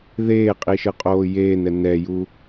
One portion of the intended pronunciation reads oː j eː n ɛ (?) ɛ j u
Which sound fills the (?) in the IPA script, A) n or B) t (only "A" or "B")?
A